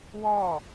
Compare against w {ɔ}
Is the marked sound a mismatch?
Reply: no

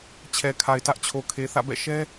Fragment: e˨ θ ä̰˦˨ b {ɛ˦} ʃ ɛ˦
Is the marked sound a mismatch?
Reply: yes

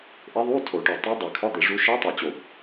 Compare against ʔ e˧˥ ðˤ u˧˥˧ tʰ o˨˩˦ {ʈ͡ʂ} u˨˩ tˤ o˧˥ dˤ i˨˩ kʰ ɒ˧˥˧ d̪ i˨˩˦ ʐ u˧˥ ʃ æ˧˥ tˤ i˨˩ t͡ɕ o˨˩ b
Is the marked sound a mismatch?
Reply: yes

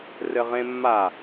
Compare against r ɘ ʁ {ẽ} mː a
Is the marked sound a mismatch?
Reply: no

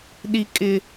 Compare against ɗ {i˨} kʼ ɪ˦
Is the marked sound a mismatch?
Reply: yes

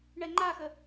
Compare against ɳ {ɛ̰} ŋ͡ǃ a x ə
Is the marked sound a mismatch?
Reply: yes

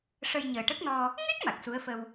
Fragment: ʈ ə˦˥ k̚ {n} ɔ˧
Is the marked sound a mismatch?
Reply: no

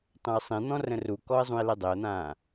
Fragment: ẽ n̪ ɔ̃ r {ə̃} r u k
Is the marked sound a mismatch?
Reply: no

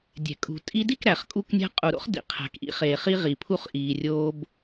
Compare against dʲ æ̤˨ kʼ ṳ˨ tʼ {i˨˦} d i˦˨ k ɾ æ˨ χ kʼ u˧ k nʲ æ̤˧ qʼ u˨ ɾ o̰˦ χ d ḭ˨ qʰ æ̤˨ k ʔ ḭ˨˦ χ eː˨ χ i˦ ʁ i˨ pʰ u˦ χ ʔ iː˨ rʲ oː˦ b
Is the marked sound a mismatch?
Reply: yes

